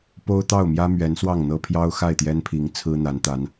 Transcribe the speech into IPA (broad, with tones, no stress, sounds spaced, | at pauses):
p o˥ ʊ̯ t̪ ɑ˥˩ ʊ̯ m j ä˥ m ɥ ɛ˧˥ n s w ɑ˥˩ ŋ n̪ ɤ˥ pʰ j ɑ˥ ʊ̯ x a˥˩ ɪ̯ t̪ j ɛ˥ n pʰ i˧˥ ŋ t͡sʰ ɹ̩˥ n̪ a˧˥ n t̪ a˧˥ n